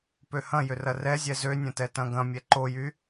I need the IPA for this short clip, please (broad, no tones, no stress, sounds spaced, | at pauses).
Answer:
p ø h ɐ̃ j ʏ r ɐ r ɛ zʲ ɛ z ø nʲ ɐ̃ t ɛ t ɐ̃ ɡ ɐ̃ mʲ ɛ ǃ o j y